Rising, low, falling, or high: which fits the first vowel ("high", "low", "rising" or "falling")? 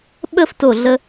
high